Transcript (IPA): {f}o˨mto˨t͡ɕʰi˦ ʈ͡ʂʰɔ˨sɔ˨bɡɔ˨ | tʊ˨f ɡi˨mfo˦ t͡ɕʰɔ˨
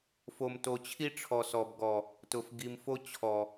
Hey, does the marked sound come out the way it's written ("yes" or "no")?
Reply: yes